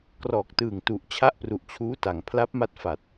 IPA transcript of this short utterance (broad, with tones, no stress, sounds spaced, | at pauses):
k r ɔː˨˩ k̚ t ɯː˨˩ ŋ t u˨˩ ʔ t͡ɕʰ a˦˥ ʔ p r u˨˩ ʔ t͡ɕʰ uː˦˥ t a˩˦ ŋ pʰ l a˦˥ p̚ m a˦˥ t̚ f a˨˩ t̚